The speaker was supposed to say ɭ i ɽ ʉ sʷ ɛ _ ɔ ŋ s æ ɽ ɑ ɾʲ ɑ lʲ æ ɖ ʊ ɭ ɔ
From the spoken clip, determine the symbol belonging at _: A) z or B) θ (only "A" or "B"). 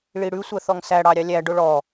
B